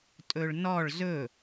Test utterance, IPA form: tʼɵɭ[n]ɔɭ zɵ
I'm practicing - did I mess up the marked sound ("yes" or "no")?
no